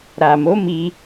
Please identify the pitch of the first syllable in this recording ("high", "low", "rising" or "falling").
low